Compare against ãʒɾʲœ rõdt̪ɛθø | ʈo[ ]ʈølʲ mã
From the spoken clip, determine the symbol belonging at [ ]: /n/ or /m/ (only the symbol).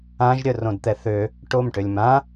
m